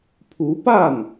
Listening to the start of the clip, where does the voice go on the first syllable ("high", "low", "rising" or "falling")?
rising